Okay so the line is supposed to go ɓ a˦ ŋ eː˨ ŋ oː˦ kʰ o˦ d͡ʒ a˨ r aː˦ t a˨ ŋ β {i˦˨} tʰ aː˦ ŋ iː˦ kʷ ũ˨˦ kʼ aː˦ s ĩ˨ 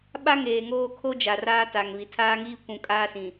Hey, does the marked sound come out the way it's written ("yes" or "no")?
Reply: no